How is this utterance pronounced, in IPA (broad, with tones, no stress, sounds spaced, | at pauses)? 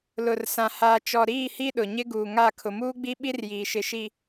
l ʊ˨ r s ã˨ h aː˨ t͡ʃ ɔ˨ ɾ iː˦˨ h i˦ ɗ ʊ˨ ɲ ɪ˦ ɡ uː˨ ŋ a˦˨ kʰ ʊ˨ m uː˦ ɡ͡b i˦ ɓ i˦ r j iː˨ ʃ ɪ˨ ʃ i˨